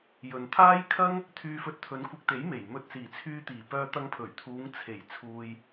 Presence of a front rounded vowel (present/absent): present